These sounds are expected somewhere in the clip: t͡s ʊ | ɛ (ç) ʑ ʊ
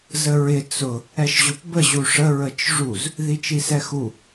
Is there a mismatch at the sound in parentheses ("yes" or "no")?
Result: yes